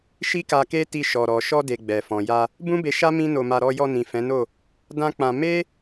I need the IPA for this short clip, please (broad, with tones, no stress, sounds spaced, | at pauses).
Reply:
ʃ i˦ k a˧ k e˦ t i˧ ʃ ɔ˨ ɾ ɔ˨ ʃ ɔ˧ d e˨ ɡ͡b ɛ˨ f ɔ̃˨ j a˧ | b ũ˦ b e˧ ʃ a˦ m ĩ˦ n o˧ m a˧ ɾ ɔ˧ j ɔ˧ n ĩ˨ f ɛ̃˨˦ n o˦˨ | d ã˦ k͡p ã˧ m e˦